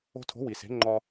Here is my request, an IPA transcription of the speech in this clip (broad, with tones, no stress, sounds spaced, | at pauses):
o̤˧ tʰ o̤˩˥ w i˩ s e̤˩˥ ŋ͡ǃ ɒ˧